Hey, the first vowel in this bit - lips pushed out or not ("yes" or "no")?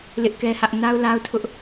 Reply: no